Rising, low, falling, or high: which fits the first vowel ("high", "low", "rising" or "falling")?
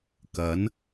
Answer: rising